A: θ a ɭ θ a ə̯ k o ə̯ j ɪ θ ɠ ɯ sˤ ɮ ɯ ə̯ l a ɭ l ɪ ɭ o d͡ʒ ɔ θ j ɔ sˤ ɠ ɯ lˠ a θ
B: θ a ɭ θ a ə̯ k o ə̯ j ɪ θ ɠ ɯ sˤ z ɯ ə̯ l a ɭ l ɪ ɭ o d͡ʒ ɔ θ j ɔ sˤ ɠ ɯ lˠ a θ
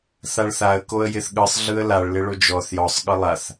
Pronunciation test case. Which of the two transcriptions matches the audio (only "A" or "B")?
A